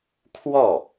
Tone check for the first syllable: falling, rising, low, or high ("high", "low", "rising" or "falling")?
falling